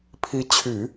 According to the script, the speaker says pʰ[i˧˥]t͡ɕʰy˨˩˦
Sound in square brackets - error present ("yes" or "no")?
no